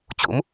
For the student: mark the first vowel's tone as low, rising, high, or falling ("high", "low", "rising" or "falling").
rising